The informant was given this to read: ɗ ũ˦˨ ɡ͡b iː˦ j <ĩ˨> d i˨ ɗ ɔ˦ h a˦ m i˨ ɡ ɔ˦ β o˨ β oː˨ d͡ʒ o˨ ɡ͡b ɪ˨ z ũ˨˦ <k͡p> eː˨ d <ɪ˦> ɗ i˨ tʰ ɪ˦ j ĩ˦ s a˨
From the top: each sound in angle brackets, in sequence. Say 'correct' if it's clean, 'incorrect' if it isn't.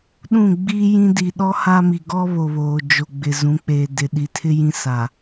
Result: incorrect: ĩ˦, correct, incorrect: ɪ˨

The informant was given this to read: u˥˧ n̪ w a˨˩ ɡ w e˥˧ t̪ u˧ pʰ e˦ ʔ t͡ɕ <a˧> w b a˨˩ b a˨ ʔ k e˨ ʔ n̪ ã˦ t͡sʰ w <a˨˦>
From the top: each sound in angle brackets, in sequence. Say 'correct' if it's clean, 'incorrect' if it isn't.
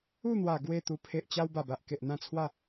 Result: incorrect: a˦, incorrect: a˥˧

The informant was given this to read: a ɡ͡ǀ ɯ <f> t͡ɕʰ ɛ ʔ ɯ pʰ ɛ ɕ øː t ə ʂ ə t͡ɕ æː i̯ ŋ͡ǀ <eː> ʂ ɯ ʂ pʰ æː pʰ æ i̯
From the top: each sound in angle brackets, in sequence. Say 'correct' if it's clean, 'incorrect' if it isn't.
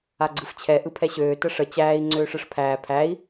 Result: correct, incorrect: øː

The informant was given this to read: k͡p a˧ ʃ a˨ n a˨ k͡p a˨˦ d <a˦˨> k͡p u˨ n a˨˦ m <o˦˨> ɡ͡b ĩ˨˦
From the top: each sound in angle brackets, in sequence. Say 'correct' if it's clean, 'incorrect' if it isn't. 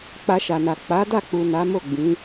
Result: correct, correct

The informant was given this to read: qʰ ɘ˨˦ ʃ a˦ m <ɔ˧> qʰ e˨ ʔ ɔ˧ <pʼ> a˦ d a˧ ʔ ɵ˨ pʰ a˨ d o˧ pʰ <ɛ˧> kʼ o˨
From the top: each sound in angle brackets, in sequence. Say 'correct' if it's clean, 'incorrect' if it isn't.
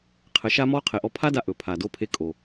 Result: incorrect: ɔ˦, incorrect: pʰ, incorrect: e˧

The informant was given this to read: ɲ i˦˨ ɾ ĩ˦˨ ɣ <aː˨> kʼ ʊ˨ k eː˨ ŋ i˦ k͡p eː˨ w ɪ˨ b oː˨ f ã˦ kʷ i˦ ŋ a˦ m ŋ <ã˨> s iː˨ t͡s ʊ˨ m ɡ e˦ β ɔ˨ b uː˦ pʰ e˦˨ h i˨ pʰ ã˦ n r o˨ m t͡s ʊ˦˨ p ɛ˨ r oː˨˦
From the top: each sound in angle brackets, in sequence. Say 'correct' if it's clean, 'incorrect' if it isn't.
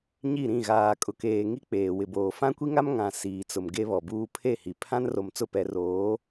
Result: correct, correct

